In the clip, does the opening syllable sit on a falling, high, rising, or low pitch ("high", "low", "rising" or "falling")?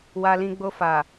low